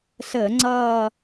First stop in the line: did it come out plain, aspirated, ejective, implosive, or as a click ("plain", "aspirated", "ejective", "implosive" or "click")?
click